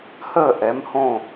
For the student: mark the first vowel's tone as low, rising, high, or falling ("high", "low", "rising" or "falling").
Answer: falling